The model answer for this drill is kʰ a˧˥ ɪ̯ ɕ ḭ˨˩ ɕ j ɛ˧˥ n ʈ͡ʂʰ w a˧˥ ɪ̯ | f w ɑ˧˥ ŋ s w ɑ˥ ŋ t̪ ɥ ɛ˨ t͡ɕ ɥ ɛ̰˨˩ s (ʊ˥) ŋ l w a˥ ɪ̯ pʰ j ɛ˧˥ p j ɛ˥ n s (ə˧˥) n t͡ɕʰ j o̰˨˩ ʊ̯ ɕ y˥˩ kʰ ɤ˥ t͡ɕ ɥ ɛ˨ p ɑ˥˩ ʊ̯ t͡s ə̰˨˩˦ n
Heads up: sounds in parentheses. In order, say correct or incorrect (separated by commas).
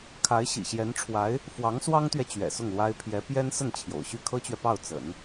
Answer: incorrect, incorrect